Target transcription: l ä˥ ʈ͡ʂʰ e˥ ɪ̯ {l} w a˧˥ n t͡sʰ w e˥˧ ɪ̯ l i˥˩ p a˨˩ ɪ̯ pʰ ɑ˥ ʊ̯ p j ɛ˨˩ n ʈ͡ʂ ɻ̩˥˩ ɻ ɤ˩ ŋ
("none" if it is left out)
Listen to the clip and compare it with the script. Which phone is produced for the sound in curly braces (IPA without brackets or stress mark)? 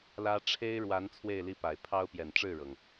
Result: ɻ